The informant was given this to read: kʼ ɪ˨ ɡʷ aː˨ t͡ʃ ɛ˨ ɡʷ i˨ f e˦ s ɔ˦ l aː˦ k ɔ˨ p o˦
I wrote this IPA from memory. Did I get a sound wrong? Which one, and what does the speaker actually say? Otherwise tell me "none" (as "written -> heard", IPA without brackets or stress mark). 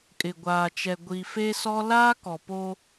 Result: none